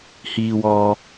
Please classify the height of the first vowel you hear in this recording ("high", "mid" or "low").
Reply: high